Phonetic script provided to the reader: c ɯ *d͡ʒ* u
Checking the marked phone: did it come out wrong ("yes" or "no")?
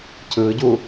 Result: yes